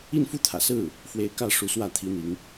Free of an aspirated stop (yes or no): no